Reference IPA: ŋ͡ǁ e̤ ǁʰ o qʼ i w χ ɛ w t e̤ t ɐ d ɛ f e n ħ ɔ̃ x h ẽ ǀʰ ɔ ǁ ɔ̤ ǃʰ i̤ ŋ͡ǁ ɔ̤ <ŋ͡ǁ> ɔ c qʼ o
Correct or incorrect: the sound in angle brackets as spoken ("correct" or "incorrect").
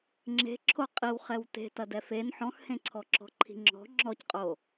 correct